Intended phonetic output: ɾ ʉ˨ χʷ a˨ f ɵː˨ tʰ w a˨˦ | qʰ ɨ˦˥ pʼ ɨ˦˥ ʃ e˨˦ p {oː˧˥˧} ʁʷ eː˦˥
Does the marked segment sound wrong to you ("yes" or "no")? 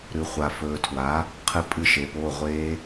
no